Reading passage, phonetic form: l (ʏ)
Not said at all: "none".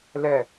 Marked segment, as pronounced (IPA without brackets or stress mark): ɛ